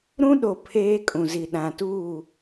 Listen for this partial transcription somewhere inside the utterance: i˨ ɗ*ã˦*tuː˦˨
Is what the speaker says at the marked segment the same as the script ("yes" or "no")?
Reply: no